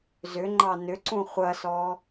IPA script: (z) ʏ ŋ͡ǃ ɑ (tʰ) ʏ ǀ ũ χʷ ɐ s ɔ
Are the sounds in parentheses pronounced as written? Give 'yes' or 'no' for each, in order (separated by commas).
yes, no